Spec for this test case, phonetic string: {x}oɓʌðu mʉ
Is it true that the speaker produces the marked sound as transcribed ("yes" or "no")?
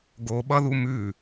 no